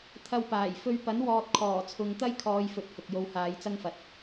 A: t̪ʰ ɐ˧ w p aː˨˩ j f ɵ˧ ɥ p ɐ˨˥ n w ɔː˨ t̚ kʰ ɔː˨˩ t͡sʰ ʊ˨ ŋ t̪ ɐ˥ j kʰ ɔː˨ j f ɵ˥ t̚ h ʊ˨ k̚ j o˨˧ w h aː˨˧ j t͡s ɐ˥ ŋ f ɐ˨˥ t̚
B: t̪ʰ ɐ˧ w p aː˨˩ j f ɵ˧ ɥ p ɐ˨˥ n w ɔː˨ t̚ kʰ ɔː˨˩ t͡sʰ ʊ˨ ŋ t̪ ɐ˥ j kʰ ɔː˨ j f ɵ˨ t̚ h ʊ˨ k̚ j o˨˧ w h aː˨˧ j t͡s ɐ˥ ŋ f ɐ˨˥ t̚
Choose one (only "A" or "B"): B